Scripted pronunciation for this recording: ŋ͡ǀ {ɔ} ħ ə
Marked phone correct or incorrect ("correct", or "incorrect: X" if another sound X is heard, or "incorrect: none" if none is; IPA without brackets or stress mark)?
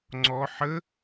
correct